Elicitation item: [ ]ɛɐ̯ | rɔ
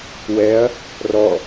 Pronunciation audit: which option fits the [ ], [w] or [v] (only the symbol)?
w